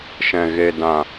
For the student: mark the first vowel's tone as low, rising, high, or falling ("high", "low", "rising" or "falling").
low